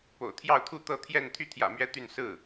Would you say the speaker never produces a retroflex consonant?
yes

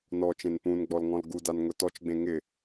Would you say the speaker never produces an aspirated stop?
yes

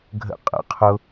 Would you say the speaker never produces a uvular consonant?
no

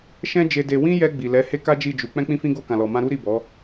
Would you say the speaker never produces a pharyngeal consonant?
yes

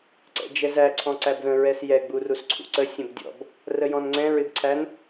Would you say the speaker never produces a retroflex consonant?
yes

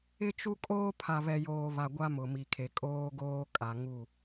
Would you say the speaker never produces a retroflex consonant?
yes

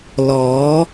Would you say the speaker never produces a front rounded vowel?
yes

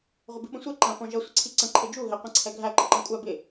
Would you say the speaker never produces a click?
no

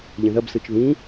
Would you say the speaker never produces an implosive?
yes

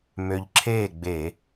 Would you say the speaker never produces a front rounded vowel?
no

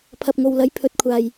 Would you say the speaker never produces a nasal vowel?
yes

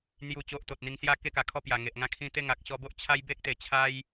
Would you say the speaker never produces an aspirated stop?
no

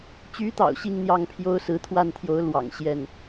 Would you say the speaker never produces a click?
yes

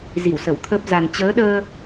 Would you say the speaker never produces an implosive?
no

